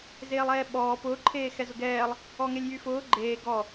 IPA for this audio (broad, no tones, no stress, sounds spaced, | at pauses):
z eː lˠ ɛː ɓ ɔː p ʊː ǃʰ eː x ɛ z ʊ ɡ ɛː lˠ | ɔ ŋ e lʲ j y f ʊː ɡ͡ǃ eː ɡ ɔ